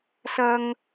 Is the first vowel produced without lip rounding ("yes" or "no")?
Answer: yes